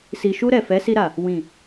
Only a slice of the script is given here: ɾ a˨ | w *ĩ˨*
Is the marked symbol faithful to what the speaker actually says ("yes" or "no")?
yes